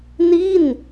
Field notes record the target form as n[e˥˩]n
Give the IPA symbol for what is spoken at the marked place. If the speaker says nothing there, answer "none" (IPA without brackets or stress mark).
i˥˩